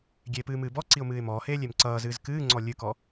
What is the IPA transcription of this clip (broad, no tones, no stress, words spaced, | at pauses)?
ɡʲeːpɨːmɨːbɔ ǀiʊ̯mɨːɪ̯mɔːheː lʲemǀʌːzɨːz kɨːŋ͡ǀɔ lʲɨkɔ